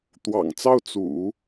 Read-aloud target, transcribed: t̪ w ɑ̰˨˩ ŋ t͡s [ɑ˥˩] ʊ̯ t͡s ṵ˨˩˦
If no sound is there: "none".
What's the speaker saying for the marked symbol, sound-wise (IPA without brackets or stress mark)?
ɑ˥˩